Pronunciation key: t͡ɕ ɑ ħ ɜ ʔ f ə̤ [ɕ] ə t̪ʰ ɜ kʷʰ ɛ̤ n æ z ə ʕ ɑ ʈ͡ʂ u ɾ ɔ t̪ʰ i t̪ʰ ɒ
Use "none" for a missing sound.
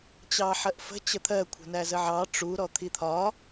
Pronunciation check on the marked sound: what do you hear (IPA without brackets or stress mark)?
t͡ɕ